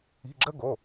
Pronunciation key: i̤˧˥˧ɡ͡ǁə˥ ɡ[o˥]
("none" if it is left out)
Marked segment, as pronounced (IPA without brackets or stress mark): o˧˥˧